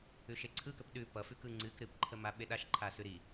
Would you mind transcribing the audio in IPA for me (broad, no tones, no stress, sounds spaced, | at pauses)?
ʉ ʃ e ǀʰ ɯ k ə p ɗ ʉ p ʌ f ʉ k ɯ ŋ͡ǀ ɨ k ɾ ɨ p ǃʰ ə m a ɓ e ɗ a ʃ ǃʰ a s ʉ ɾ i